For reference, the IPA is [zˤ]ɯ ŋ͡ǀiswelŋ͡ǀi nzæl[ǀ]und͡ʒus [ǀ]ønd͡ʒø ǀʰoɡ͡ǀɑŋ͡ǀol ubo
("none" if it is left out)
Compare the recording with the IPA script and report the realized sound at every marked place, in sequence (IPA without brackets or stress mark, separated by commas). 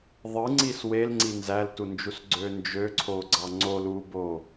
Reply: ðˤ, t, ɡ͡ǀ